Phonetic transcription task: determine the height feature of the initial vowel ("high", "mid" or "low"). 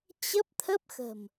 mid